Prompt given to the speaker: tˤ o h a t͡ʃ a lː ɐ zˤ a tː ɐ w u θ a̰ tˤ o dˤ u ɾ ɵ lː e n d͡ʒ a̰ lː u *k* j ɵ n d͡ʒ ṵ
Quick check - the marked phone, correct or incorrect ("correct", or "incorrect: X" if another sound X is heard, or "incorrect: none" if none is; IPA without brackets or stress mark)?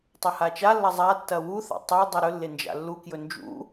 correct